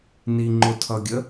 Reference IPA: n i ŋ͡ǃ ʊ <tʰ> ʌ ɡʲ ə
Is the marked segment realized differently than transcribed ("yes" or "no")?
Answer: no